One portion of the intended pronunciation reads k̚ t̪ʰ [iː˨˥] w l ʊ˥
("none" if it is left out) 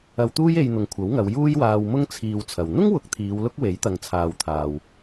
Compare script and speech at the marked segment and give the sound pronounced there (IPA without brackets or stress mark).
iː˨˧